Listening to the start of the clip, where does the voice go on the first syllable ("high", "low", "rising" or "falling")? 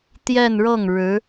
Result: falling